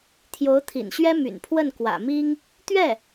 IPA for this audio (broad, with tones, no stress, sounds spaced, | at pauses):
t̪ʰ j o˧˥ ʊ̯ t̪ʰ ḭ˨˩ n ɕ ɥ ɛ˥ m y̰˨˩ n pʰ w ə˥˩ n k w ä̰˨˩ m i˥ ŋ | t̪ ɥ ɛ˥˩